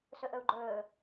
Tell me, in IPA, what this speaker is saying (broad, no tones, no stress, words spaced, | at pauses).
sɵʔɵu̯ɡ͡ǃɵː